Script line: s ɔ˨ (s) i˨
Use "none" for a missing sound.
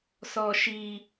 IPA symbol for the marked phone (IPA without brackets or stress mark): ʃ